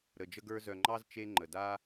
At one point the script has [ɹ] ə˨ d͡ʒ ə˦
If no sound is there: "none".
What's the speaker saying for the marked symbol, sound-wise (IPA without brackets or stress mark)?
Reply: ɾ